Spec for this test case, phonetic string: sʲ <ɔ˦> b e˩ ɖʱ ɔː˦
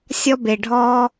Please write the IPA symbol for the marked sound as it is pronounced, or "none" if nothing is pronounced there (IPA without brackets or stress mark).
ɔ˦